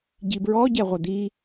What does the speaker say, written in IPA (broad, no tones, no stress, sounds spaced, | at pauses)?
ɟ i b ɹ ɔ ɟ ɛ ʁʷ ɛ d̪ i